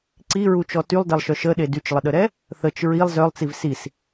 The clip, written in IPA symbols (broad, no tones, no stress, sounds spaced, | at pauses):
ǀ i ɹ u t͡ʃ ɔ t y lˠ d ɛ lˠ ʃ œ ʃ ə ɗ e d y t͡ʃ lˠ ə ɗ ə ɾ ɛ | θ ə t͡ʃ ɹ i lˠ z œ lˠ t͡s i v s i s